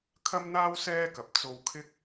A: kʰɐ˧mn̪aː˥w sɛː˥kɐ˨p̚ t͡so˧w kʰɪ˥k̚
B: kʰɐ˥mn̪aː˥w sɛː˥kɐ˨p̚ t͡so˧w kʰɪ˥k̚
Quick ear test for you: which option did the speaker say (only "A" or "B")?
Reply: B